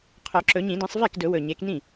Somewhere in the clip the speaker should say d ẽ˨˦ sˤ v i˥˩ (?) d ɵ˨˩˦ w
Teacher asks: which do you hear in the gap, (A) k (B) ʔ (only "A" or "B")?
A